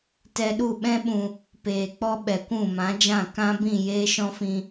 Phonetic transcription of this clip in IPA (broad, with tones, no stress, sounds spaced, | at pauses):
t ɛ˧ ɗ u˦˨ ɓ ɛ̃˦ ɓ ũ˧ | p eː˨ k͡p ɔ˧ ɓ ɛ˨ kʷ ũ˦˨ m ã˨˦ d͡ʒ ã˦˨ k ã˦ b ĩ˦˨ j eː˦ ʃ ɔ̃˦ f ĩ˧